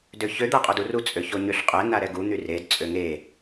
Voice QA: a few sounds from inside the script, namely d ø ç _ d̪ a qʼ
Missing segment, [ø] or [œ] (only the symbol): ø